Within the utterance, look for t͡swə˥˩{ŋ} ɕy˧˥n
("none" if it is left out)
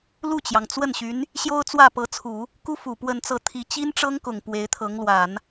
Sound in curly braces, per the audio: n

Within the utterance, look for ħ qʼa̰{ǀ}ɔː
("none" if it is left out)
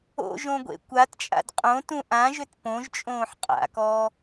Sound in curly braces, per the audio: k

